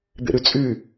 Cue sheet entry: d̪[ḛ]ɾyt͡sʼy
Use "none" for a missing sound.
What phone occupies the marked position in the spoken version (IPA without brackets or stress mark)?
ḛ